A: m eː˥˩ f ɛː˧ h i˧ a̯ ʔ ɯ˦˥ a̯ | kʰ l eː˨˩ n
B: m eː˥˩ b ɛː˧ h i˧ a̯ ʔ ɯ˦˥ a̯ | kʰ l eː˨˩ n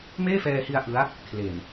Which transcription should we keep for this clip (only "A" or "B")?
A